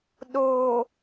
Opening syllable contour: low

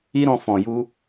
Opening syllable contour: high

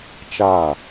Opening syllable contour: falling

